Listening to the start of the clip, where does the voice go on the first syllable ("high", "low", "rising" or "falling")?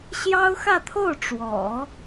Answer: high